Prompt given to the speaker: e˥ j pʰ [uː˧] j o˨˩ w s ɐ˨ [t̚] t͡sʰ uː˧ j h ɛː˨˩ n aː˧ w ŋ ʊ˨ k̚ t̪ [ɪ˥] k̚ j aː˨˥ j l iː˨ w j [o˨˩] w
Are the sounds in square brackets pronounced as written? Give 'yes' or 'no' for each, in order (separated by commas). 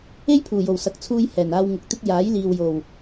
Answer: no, no, yes, yes